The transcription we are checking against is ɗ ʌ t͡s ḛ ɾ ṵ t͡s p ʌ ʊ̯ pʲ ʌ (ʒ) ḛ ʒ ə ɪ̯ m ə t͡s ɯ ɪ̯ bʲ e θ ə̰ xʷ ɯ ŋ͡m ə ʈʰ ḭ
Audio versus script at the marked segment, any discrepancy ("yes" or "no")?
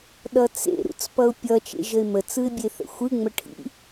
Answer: yes